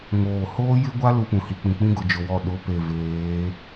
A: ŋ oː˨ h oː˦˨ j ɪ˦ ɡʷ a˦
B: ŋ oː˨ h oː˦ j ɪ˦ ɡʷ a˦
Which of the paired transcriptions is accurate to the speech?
B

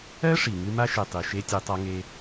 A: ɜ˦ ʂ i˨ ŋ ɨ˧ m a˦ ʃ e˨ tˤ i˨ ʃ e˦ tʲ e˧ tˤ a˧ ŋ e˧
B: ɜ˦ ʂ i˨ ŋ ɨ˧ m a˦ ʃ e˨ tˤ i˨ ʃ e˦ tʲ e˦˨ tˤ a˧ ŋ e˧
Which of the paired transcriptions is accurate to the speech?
A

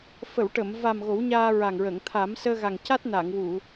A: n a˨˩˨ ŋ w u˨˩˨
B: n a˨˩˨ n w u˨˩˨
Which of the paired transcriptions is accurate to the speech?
A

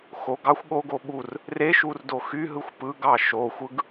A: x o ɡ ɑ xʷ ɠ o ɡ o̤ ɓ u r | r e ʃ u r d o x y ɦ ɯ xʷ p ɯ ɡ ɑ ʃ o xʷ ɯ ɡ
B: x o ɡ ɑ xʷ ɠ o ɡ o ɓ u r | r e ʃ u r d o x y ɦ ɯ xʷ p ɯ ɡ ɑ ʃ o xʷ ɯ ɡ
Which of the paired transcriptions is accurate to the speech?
B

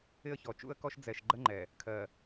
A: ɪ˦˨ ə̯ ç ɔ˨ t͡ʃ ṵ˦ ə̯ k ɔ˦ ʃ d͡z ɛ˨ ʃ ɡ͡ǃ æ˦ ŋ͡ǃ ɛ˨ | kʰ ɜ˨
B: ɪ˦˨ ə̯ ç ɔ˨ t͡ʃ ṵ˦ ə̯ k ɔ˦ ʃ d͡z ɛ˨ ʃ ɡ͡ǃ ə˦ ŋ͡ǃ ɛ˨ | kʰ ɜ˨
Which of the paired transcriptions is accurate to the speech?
B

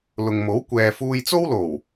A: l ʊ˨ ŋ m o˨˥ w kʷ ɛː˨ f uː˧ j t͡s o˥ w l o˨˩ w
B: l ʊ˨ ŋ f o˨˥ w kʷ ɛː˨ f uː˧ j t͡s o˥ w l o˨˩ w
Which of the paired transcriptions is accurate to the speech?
A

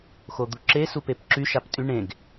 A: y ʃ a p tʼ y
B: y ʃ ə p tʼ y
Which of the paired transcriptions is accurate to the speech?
A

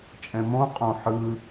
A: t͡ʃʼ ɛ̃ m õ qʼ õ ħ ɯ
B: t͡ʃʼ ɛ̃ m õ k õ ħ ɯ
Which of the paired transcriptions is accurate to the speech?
A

